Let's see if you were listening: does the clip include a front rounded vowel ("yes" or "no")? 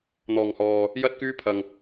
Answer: yes